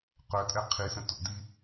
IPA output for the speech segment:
q œ tʼ ɛ qʰ i s ə̃ t o̰ d i

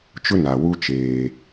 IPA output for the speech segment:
t͡ʃ ʊ˦ n a˨ w u˦ t͡ʃ eː˦

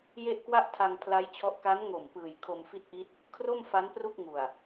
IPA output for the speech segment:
j e˥˩ ʔ k w a˥˩ ʔ tʰ a˧ ŋ pʰ l a˦˥ j t͡ɕʰ ɔ˦˥ ʔ k a˦˥ n ŋ o˨˩ m p ɯː˨˩ j kʰ o˧ m f i˥˩ t̚ ʔ i˦˥ t̚ | kʰ r o˥˩ m f a˦˥ n p r u˥˩ k̚ ŋ u˨˩ a̯

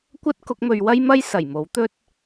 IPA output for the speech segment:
kʷ ɐ˥ t̚ k ʊ˨˥ k̚ m ɵ˨˧ ɥ w ɐ˥ j m ɐ˥ j s ɐ˨˩ j m o˨˥ w t̪ ɵ˥ t̚

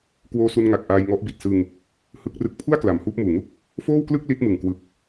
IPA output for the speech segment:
k w oː˧ s u˧ n ŋ a˨˩ k̚ ʔ aː˧ j ŋ ɔ˦˥ ʔ b i˨˩ t̚ s ɯ˧ ŋ | h ɯ˦˥ k̚ r ɯ˦˥ k̚ pʰ u˥˩ a̯ k l a˩˦ m h uː˦˥ p̚ m uː˨˩ ŋ u˥˩ k̚ | f oː˥˩ w k l ɯ˥˩ k̚ l i˦˥ t̚ m ɯ˨˩ ŋ k w ɯ˨˩ k̚

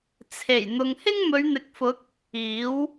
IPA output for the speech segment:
t͡sʰ e˨˩ j n̪ ʊ˨ ŋ h ɪ˥ ŋ m ɵ˨˧ ɥ n̪ ɪ˨ k̚ f ʊ˨˥ k̚ | iː˨˥ w

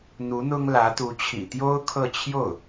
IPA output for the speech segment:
n̪ u˧˥ n̪ ʊ˥ ŋ l ä˧˥ t̪ u˧˥ t͡ɕʰ ḭ˨˩ t̪ j o˥ ʊ̯ kʰ ɤ˥˧ t͡ɕʰ j o˥˩ ʊ̯

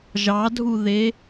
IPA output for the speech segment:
ʒ ɑ dʱ u ð e

